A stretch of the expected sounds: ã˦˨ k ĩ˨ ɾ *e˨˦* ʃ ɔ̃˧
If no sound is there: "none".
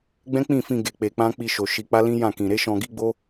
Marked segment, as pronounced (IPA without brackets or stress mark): e˨˦